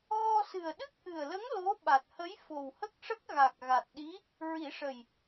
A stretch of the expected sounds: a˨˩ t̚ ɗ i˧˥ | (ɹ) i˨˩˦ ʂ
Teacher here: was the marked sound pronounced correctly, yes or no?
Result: yes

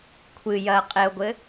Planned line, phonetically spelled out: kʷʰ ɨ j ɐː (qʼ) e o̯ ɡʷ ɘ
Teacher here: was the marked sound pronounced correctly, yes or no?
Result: yes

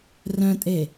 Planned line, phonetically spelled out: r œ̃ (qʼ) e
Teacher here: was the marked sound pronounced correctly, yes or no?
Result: no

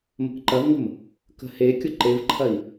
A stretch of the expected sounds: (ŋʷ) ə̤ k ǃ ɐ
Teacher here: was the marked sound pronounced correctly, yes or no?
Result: no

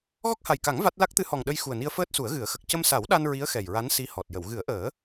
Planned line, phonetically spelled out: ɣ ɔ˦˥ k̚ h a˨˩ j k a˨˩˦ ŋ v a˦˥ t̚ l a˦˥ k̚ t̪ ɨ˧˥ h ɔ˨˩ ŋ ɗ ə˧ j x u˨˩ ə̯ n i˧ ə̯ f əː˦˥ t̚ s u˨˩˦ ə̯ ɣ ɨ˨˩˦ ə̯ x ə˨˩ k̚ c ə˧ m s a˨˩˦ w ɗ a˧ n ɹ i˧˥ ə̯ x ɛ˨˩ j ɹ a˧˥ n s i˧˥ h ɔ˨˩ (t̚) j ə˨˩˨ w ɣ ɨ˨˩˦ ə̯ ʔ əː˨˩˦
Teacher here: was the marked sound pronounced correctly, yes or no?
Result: yes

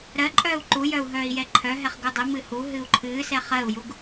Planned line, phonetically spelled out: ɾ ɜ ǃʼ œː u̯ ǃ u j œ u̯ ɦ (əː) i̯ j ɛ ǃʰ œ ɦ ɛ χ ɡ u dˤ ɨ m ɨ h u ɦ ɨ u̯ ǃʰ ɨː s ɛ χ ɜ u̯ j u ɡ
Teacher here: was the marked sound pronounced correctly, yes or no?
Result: no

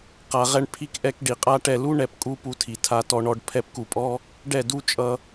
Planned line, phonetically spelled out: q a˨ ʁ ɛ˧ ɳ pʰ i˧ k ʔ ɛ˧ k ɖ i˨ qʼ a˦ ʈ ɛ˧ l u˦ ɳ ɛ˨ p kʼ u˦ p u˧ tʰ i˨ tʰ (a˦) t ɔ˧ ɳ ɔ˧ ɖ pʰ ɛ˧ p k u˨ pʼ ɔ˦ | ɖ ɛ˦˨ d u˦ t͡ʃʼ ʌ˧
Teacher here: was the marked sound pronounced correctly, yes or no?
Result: yes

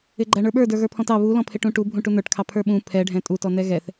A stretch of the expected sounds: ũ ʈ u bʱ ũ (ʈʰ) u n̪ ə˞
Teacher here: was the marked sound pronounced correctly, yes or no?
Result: no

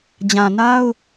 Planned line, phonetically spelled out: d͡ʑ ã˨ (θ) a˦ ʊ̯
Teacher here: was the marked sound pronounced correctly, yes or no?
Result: no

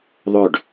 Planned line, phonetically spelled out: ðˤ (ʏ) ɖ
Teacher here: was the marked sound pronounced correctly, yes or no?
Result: yes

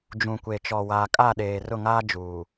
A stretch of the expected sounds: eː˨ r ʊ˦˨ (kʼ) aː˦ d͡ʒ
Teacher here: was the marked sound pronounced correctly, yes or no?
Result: no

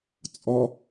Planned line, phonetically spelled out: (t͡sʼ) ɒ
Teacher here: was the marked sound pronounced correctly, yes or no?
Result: yes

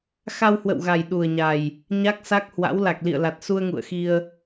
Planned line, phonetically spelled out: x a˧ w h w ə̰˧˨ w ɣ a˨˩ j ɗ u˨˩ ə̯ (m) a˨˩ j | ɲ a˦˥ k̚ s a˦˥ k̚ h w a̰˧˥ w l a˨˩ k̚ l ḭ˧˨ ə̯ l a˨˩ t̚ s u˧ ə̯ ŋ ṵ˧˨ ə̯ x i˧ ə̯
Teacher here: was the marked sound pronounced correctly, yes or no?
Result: no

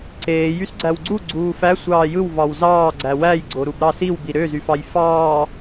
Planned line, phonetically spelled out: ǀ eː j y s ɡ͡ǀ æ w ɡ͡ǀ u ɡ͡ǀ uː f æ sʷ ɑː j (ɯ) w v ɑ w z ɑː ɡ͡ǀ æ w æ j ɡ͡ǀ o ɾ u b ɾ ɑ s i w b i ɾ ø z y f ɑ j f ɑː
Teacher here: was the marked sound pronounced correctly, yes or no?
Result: yes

